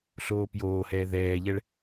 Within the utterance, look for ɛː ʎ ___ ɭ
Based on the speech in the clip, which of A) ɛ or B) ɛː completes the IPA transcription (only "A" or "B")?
A